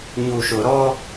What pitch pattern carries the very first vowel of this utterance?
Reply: low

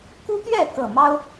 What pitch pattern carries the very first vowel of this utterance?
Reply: high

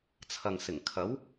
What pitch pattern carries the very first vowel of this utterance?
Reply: low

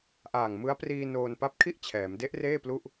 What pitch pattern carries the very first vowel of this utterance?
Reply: low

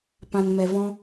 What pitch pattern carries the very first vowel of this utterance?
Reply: low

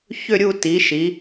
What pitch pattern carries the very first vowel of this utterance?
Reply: falling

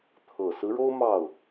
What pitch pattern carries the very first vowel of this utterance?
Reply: low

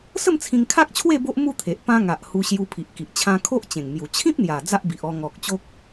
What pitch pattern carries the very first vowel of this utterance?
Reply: falling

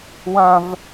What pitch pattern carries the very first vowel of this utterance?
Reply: high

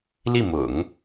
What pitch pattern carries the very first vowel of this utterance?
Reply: falling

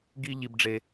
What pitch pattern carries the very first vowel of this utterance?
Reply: high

